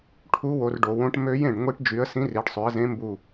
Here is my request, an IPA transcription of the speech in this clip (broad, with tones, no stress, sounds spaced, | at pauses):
ʈʰ u˧˥ w o˩˧ r ɖ o˩˧ w õ˧˥ ʈ m ø˧˥ j ẽ˧˩ ɖ ŋʷ i˧˥ ʈ d͡ʒ y˩˧ ə̯ s ĩ˧˥ r i˩˧ ɖ sˤ ø˩˧ ə̯ z ẽ˧˥ m b u˧˩